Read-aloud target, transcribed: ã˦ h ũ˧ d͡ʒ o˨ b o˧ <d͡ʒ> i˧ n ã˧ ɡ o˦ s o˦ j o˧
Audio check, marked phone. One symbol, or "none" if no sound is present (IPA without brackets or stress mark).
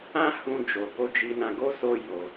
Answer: d͡ʒ